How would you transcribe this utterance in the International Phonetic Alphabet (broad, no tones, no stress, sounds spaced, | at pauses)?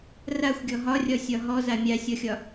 r a xʷ ɡʲ ɔ ɦ ɒ rʲ ɒ sʲ ɒ ɦ ɔ z a mʲ a sʲ ɔ xʲ ɒ